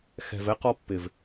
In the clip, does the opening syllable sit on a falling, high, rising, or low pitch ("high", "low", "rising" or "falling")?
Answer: low